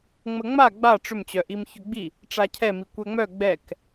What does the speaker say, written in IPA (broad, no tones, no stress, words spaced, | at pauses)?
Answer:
ŋ͡məŋ͡ma ɡ͡ba ʈ͡ʂʏmt͡ɕœʔim çʏɡ͡bi | ʈ͡ʂacʰɛmi kʷɛŋ͡mœ ɡ͡bɛk